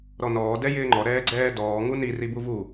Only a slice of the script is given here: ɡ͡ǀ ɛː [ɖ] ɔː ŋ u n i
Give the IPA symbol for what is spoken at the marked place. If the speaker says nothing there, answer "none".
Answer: d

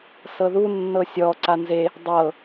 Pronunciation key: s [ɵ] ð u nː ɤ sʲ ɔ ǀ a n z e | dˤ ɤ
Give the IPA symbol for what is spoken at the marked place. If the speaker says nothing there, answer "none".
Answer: ɤ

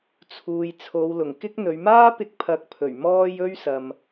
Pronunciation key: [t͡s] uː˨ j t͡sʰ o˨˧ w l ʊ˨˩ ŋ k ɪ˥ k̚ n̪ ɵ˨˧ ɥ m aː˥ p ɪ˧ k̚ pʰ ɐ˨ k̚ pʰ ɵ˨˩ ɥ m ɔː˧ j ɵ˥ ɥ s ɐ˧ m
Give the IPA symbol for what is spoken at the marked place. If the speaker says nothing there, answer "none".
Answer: t͡sʰ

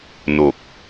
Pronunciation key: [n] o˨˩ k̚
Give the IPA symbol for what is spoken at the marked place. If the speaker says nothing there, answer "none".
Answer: n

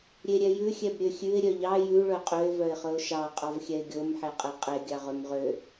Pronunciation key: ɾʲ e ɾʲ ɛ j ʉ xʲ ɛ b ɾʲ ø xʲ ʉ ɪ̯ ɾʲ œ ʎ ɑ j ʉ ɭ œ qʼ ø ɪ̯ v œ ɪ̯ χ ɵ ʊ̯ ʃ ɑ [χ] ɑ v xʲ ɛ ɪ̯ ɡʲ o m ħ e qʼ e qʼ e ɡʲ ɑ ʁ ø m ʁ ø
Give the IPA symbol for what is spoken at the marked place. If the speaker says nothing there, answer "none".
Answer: qʼ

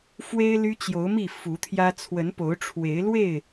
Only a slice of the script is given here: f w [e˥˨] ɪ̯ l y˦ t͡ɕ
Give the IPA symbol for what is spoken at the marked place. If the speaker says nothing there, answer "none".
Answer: e˦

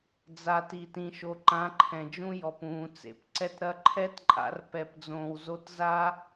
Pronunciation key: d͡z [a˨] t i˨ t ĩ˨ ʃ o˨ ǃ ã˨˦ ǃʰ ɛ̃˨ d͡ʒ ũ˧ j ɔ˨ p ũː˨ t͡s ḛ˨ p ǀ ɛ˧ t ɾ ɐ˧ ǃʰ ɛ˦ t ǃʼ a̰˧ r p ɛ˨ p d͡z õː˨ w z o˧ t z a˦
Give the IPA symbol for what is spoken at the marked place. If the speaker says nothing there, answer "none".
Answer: a˨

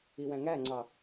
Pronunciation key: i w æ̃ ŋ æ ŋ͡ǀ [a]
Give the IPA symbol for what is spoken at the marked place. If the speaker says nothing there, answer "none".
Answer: ɑ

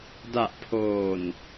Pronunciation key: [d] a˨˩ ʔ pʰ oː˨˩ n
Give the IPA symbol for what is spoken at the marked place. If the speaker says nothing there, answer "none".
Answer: d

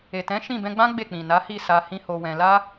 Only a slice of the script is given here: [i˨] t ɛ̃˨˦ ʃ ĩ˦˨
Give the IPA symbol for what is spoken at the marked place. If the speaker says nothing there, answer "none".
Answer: e˨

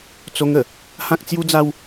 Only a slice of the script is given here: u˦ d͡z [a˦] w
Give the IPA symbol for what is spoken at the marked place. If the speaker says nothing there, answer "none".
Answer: a˦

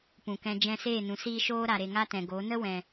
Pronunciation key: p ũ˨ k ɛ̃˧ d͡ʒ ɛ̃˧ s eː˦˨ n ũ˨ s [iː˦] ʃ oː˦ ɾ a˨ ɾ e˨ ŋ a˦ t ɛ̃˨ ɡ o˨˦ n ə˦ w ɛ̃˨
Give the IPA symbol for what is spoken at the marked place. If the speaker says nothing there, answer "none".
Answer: iː˦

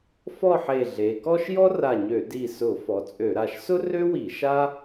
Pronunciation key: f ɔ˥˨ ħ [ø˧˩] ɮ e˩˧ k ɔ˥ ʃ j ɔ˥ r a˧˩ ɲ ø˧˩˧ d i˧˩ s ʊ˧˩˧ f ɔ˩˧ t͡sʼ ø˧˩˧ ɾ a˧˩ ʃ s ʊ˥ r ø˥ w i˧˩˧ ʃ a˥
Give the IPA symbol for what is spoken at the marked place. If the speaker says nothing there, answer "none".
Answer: e˧˩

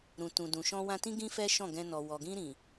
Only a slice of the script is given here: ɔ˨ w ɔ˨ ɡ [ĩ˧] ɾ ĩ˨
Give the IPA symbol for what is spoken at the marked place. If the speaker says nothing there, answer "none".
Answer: ĩ˧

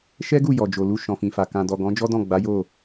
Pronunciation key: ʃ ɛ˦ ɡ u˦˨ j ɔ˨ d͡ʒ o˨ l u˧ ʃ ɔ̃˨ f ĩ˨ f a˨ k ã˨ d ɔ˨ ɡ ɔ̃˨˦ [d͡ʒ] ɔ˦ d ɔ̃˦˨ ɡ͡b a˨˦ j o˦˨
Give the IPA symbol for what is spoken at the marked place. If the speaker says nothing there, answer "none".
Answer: d͡ʒ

